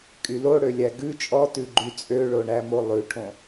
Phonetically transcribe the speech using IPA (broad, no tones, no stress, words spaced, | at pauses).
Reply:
kʼyloɽø lʲæɡʉ t͡ʃʼɔtʉɡ͡ǃy t͡sʼøɭoɳæmo lˠʉʈʰõ